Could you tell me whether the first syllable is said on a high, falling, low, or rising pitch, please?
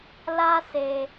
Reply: high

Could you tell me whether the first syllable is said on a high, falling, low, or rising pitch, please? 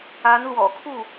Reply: rising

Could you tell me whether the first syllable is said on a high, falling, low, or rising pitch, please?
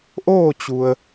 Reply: falling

